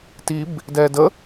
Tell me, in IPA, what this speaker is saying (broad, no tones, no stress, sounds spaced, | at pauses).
t i b | d ɛː d ə